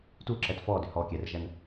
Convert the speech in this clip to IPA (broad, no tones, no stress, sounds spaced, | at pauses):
t u ǁ ɛ t f ɔ d ʏ h ɔ kʲ ɛ r ʒ æ n